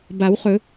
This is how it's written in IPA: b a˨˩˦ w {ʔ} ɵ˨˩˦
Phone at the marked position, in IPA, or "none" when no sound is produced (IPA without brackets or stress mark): χ